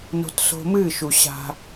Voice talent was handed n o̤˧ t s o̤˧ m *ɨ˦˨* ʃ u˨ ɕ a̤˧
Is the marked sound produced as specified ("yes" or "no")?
yes